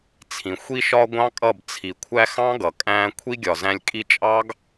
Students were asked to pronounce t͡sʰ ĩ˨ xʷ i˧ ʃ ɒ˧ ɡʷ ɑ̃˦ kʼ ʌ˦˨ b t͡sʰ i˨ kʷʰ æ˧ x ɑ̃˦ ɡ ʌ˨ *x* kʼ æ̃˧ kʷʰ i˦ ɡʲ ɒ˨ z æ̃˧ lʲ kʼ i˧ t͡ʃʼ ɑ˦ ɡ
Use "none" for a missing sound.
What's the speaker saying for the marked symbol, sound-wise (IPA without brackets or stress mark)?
none